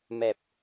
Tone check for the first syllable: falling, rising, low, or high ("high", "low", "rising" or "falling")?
low